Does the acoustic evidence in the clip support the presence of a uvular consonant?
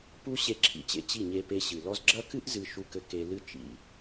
no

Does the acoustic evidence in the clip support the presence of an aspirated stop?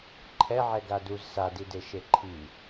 yes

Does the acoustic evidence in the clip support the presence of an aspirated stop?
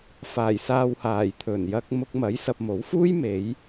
yes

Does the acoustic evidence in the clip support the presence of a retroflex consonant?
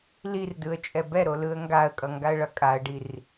yes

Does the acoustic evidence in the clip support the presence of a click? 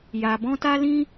no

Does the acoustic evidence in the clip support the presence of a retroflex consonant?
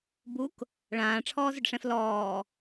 yes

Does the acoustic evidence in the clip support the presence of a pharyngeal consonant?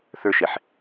yes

